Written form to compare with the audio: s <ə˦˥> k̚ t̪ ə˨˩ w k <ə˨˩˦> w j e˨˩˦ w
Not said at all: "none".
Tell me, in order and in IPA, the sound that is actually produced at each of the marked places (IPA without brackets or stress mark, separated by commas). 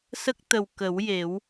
ə˦˥, ə˨˩˦